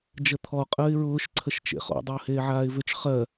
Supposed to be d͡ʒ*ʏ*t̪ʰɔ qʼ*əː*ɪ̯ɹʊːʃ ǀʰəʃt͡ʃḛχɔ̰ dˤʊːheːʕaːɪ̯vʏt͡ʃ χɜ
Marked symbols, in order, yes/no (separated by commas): no, yes